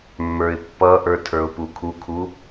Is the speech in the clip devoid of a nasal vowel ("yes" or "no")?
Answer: yes